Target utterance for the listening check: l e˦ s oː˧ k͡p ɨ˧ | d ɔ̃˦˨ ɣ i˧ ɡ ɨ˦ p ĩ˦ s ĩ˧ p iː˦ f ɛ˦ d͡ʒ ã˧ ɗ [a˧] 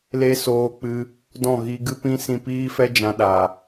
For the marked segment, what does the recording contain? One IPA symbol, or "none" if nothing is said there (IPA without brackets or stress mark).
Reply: a˨